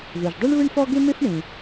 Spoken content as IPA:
ð u˩ ʒ dˤ e˥ ɳ β ɯ˥ ɳ f ɔ˥ ɡ e˥ m e˥ f ɳ ĩ˩

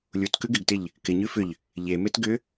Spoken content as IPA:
lʲ u t k ʉ ɡ ɪ ɡ t ɪ ʎ | k ɪ ɲ ʉ f ʏ ʎ | ʎ e m e t ɡ ʏ

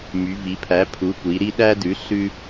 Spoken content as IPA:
m y˩˧ v i˩˧ pʰ æ˩˥ pʰ u˩˥ kʷ i˩˧ ɾ i˦ ɗ æ˦ d ʉ˩˥ ɬ ʉ˦

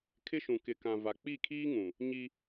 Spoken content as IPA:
kʰ ɪ˦ ʃ ũ˨ k ɪ˨ k ã˨ v a˨ k͡p i˦˨ kʰ iː˦ ŋ ũ˨ | ɲ i˦

